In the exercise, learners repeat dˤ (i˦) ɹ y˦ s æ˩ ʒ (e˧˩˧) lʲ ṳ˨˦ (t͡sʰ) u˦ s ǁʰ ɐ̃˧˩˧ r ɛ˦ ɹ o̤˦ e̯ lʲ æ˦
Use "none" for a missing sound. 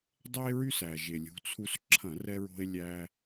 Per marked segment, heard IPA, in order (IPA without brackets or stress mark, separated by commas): e˦, e˩, t͡sʰ